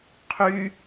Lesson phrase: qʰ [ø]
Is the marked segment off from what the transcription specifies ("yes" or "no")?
yes